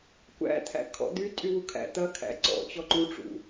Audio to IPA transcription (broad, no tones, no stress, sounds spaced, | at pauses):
kʷ æ̰ t̪ʰ æ̰ kʰ ɔ̰ d̪ y tʼ y w u kʰ æ̰ t̪ ɐ kʰ æ̰ ǀ ɔ̰ t͡ɕ ɔ ǃ u ʈ͡ʂ ṵ